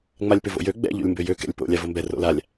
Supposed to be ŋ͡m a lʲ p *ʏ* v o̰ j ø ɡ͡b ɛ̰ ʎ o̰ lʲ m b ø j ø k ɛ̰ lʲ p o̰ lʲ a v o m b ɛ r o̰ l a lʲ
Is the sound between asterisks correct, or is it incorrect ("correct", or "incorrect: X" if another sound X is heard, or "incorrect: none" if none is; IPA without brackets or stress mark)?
correct